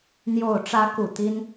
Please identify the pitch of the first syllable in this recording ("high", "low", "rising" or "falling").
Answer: low